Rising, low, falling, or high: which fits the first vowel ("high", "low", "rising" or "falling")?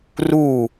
falling